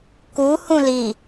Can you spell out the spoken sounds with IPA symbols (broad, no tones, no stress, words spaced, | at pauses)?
ku hũli